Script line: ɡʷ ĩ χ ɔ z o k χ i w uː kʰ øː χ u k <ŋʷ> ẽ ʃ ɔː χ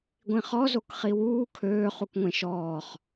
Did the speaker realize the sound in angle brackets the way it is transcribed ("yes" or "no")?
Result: yes